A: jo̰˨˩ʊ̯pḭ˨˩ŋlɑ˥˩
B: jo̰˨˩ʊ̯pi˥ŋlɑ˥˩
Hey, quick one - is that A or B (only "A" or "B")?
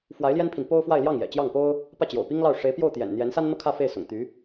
B